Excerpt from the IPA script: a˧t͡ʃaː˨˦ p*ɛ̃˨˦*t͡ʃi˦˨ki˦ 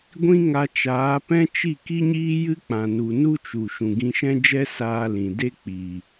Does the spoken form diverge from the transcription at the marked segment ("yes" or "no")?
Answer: yes